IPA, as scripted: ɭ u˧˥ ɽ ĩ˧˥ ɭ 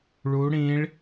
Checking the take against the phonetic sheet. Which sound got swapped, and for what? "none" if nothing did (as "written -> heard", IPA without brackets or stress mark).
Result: none